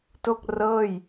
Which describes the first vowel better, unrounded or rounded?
rounded